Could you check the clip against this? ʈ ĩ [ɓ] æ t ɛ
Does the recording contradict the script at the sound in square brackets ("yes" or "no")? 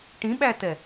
no